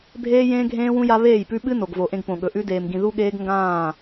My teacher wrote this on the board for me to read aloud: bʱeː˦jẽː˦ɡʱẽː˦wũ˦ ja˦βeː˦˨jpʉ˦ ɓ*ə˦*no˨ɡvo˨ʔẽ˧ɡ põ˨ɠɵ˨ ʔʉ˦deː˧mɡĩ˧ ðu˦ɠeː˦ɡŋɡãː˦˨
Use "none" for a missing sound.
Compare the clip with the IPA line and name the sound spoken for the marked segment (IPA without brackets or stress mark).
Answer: ɨ˦